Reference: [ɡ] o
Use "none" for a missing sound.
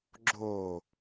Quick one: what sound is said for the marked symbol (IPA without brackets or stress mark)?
ɡ͡ǁ